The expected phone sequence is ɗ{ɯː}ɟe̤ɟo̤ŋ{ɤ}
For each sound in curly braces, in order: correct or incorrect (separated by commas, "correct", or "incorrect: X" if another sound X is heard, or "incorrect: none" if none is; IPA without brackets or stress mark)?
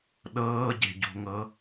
incorrect: ɤː, correct